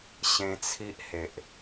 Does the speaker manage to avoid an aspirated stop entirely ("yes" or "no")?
no